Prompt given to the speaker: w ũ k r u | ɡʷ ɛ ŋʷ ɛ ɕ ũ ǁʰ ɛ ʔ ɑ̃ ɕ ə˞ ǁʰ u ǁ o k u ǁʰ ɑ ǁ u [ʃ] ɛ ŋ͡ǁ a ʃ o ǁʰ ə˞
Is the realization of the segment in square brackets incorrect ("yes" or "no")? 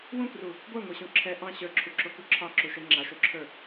no